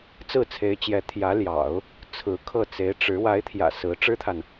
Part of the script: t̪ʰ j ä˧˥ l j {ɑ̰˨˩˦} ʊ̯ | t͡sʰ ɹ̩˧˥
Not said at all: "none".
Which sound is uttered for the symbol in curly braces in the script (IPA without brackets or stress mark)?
ɑ̰˨˩˦